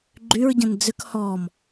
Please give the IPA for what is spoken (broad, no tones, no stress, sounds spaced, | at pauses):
ɡ͡ǃ y ɹ ɟ ə̃ n d͡z ʏ k h ɔ m